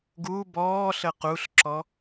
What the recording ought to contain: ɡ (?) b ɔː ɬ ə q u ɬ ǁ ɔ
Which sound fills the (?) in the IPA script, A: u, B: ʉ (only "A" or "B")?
A